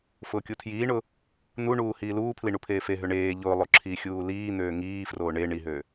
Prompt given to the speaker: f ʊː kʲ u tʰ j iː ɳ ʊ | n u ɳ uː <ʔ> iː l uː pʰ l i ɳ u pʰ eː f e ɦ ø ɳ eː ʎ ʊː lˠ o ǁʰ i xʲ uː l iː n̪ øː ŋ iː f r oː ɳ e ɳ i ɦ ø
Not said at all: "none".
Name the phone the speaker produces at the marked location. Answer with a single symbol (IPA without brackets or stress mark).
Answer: h